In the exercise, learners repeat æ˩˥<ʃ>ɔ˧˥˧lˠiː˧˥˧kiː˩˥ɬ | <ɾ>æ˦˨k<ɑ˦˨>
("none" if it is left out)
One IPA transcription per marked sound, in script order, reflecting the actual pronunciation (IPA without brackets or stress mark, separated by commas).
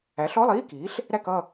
ɬ, ɾ, ʌ˦˨